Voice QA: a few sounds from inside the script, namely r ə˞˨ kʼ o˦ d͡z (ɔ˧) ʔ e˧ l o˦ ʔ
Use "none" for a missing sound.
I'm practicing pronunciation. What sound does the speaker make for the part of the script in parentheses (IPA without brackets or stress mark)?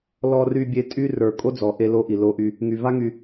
ɔ˨